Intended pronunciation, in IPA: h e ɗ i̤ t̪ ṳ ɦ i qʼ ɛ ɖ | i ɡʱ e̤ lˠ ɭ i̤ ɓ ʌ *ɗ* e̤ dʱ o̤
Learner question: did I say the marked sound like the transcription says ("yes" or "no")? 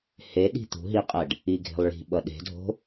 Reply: yes